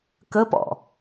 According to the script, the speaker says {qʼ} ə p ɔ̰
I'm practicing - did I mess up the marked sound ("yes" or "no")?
yes